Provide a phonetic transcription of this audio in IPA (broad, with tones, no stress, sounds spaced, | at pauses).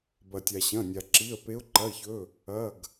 b ɐ˩ tʲ a˩ ɕ ɐ̃˩˧˩ nʲ a˩ ǁ i˩˧˩ ə̯ p e˨˦ ʊ̯ ǃ ɐ˩˧˩ ɪ̯ ç ɵ˩˧˩ | ɐ˩˧˩ ɡ